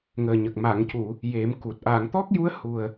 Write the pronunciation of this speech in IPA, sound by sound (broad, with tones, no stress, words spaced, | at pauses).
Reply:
ŋəː˨˩ɲə˨˩k̚ ma˨˩˨ŋcu˨˩˨ | je˨˩˦mku˨˩t̚ ʔa˨˩˨ŋt̪ɔ˦˥k̚ju˧˥ə̯ hu˨˩ə̯